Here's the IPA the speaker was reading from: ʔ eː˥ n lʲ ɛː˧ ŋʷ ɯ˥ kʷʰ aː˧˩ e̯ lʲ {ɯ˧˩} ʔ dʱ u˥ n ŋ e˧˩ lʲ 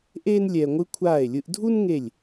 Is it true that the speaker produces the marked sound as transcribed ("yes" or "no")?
no